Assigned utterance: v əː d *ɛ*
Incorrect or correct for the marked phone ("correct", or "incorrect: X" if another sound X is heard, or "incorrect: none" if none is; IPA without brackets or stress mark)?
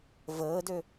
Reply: incorrect: ø